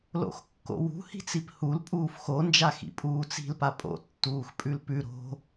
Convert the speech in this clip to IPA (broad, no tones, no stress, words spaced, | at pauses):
lo̰xkːo̰wṳ hi̤t͡siphul pʼuːfxo nd͡ʒaxḭpʼuːt͡si̤l papʼo̰ tːuːxpʼʉlpʉ ɾo̤